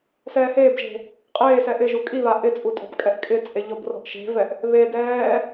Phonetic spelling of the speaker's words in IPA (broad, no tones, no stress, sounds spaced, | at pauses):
s ɛː h eː b ʒ e̤ | qʼ eː s ɛ ʔ ɪ ʒ u kʼ i β a ʔ ɪ t͡sʼ u tʼ ɔ̤ b kʼ ɛ ʔ kʼ ɪ t͡sʼ e ʎ ɔ b r ɔ̤ ʔ ʃ e̤ v ɛ ʔ | β e d ɛː